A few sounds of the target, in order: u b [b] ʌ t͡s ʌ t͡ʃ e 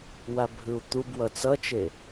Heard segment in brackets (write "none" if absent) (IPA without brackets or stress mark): w